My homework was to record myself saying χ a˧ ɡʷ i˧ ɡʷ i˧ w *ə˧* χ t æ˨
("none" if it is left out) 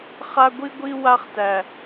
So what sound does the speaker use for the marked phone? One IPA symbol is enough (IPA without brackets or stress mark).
a˧